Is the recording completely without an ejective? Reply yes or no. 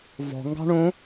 yes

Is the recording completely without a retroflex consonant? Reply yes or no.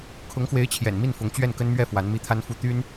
yes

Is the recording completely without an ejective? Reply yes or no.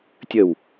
yes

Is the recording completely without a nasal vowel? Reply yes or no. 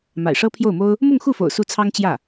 yes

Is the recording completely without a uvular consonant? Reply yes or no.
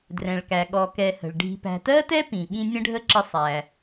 yes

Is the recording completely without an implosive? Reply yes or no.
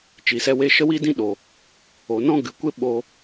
no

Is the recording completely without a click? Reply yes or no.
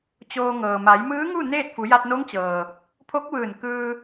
yes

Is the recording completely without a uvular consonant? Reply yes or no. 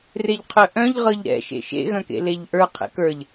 no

